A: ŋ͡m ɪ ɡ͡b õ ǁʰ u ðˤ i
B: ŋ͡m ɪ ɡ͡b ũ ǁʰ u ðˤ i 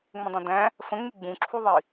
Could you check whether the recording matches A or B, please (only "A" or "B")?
B